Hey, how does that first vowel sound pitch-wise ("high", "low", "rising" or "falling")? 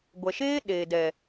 low